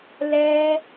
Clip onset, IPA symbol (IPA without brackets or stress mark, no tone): l